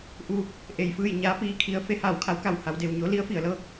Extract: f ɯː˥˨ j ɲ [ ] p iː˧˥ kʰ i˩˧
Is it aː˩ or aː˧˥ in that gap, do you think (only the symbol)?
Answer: aː˧˥